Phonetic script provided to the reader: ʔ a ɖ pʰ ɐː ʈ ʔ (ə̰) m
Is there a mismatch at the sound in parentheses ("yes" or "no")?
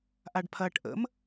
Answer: no